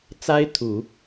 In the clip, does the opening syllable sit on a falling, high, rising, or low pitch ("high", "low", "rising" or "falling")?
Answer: high